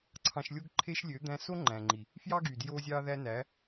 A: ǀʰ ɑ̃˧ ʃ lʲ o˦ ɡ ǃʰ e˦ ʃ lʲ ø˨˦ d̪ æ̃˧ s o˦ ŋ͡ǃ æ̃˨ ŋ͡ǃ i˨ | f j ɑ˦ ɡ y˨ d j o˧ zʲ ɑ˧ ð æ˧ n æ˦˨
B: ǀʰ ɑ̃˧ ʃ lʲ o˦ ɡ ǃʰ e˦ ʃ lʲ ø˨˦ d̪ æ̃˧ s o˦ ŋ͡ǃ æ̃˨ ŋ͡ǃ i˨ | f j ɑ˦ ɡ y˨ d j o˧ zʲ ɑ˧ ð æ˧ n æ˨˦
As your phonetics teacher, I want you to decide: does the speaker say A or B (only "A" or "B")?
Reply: B